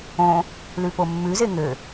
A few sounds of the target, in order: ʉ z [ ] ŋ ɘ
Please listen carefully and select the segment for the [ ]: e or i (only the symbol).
e